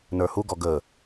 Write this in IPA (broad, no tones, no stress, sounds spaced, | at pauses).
n ə˞ h u ɡ ɔ ɡ ə